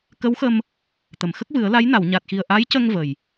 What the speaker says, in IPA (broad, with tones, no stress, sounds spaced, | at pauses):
k ə˧˥ w x ə˧ m | t̪ ə˨˩˨ m x ə˦˥ k̚ v ɨ˨˩˦ ə̯ l a˧˥ j n a˨˩˨ w ɲ a˨˩ t̚ x i˨˩ ə̯ ʔ a˧˥ j c ə˧ ŋ v ə˨˩ j